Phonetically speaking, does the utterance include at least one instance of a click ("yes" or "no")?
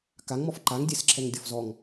yes